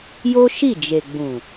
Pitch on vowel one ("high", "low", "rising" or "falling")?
high